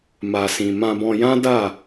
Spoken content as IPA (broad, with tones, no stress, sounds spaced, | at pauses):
m a˨ s ĩ˨ m ã˧ b ɔ̃˧ j ã˦ d a˦˨